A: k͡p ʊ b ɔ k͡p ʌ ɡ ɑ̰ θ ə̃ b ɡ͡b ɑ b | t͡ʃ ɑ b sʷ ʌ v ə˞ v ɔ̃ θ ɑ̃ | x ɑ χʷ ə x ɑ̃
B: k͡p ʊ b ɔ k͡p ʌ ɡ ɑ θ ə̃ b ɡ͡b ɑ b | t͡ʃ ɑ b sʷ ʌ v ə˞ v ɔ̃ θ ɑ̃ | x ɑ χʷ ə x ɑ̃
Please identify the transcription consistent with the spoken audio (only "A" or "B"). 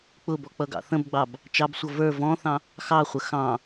A